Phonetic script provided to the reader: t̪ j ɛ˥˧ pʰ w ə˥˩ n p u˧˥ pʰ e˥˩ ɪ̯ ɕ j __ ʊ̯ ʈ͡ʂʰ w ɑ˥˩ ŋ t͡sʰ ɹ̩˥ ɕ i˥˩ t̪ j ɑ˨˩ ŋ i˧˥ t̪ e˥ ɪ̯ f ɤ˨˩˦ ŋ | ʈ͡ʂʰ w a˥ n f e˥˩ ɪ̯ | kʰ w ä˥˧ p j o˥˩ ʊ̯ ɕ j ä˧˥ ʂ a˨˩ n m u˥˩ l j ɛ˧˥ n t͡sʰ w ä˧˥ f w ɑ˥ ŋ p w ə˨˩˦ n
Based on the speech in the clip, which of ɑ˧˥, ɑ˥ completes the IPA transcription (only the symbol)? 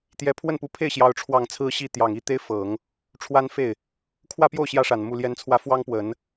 ɑ˥